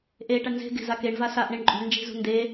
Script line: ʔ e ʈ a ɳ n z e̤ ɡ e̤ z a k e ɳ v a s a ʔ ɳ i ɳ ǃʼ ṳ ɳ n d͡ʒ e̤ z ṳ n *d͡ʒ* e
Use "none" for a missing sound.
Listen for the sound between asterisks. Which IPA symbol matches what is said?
d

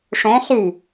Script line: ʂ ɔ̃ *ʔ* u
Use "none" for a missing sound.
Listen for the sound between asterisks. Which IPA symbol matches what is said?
χ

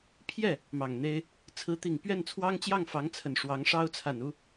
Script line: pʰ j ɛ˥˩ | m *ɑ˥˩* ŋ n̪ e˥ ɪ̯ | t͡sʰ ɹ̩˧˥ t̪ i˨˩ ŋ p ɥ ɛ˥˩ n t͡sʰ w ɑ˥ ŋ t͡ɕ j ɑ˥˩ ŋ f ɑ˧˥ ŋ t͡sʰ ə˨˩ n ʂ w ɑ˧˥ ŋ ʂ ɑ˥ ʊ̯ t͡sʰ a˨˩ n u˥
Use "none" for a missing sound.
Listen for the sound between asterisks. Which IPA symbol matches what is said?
ɑ˨˩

